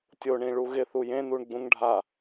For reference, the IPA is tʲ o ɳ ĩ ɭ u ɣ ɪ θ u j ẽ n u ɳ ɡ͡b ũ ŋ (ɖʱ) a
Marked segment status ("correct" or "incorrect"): correct